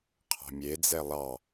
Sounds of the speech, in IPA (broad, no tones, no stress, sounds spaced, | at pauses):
qʰ ɑ̤ mʲ e d͡z ɛ lˠ ɑ